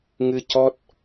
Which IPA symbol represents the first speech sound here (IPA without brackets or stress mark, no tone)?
ŋ